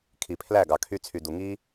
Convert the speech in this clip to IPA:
kʰi˨pʰlæ˦˨ɡɑ˨ kʰy˧t͡sʰy˨du˨ŋi˦

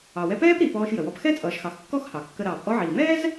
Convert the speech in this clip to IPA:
ɑ˩wɛ˧ pɛː˥pɾi˩ pɔː˧ʃ jə˩wɔ˧p xɛ˥t͡sʼʌː˩ʃxɑ˩x kːɔ˥xhɑ˩kːə˧ ɾɑː˩pʔɔ˧ʕiː˩mɛː˥z

